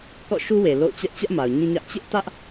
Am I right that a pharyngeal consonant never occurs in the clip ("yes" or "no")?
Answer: yes